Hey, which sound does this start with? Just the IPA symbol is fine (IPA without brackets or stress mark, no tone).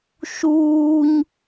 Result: ʃ